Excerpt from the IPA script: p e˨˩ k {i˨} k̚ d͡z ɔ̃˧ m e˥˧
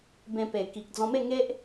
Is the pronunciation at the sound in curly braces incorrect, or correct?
correct